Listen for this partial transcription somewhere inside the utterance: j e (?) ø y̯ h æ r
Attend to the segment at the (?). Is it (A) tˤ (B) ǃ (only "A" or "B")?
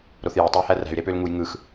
A